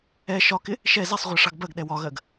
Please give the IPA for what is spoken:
ɛ ʃ ɒ k ɪ | ʃ ɛ z ɛ sˤ ʁʷ ɜ ʂ ɑ ɡ b ɜ ɡ ɗ ɛ w ɒ ɣ ɜ ɡ

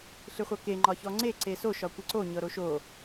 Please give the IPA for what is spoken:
ɬ ɨ χʷ ɤ k e ŋ͡ǃ ɒ ç ɔ ŋ͡ǀ e ǀ e s o ʃ ɒ kʷ ɨ ǀ o ɲ ɤ ɾ o ʃ o

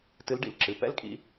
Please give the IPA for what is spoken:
t ɨ˨˦ l ɖ ḭ˩ l ǁ ɨ˩˧˩ p ɛ̰˦˥ l kʼ ḭ˨˦

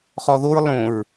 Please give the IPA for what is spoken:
χ ɔ ð o ɹ lˠ õ ɹ

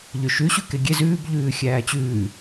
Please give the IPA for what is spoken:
ʎ ø ʃ ʉ ɕ ʉ k e ɡʲ e z ʉː b ʎ ʉː xʲ æː t͡ɕ ʉː

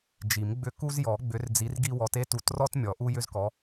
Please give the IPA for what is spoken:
d͡ʒ i˨˩˦ m ɡ͡b ʏ˦ k u˦ z j ɔ˨˩˦ ɡ͡b ʏ˨˦ r d͡z i˨˦ r ɡ i˦ w ɔ˨˦ t e˦ t u˨˦ t r ɔ˦ t mʲ ɔ˨˩˦ ʔ u˦ j ʏ˦ z k ɔ˨˦

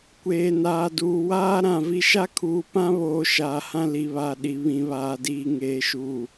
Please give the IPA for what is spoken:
kʷ eː˨ n aː˨ d uː˨ w aː˦ ɾ ã˨ v i˦ ʃ a˦ kʰ uː˨ p ã˦ β oː˨ ʃ aː˨ h ã˦ l i˨ β a˨ ɗ i˨ β ĩ˨ β aː˨ d iː˨ ŋ eː˨ ʃ uː˨

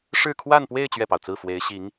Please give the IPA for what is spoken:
ʂ ɻ̩˥˧ kʰ w a˥˧ n p w e˥˧ ɪ̯ t͡ɕ ɥ ɛ˥˩ p ɑ˩ ʊ̯ t͡s ɹ̩˥˩ f w e˧˥ ɪ̯ ɕ i˧˥ ŋ

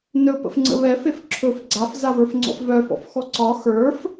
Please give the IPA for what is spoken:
n ɵ p ə̰ f ŋ͡ǀ ə̰ β ɛ f e f ǁʰ ɵ f ɡ͡ǀ a f z a v ə˞ f ŋ͡ǀ ɔ̰ f v œ f ɔ̰ f x ɔ ǀ ɒ x ə˞ f

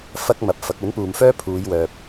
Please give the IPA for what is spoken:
f ɐ˥ k̚ m ɐ˨˥ p̚ f ɐ˨˥ k̚ ɵ˨˥ n p uː˨ m f œː˥ pʰ uː˨˧ j w œː˨ p̚

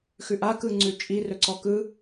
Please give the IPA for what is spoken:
x ʉ ʔ a k ɯ ŋ͡ǀ ʉ t͡ʃʼ i r ɵ ǀ ɔ k ɯ

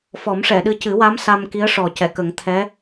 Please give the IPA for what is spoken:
f ɔ˨˩˦ m ʂ ɛ˨˩˨ ɗ ɨ˧ c ɨ˨˩˦ w a˧˥ m s a˧ m k i˧˥ ə̯ ʂ ɔ˨˩ c ɛ˨˩˨ k ə˨˩˦ ŋ t̪ʰ ɛ˧˥

